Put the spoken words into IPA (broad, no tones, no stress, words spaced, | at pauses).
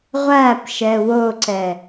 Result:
ʁʷæpʃɛ woǀɛ